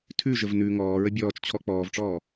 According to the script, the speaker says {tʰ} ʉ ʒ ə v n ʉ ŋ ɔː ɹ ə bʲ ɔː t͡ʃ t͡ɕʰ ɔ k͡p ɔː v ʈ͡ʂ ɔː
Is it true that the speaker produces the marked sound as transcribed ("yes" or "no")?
yes